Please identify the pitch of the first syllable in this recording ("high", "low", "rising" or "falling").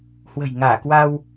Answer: low